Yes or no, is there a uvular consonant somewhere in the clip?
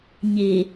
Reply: no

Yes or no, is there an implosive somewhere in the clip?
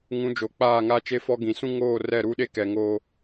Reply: yes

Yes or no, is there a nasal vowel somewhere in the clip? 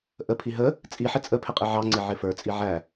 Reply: no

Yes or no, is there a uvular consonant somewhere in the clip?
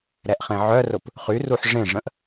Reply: yes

